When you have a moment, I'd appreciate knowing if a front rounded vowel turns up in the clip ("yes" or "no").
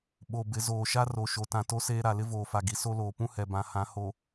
no